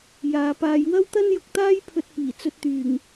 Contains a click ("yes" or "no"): no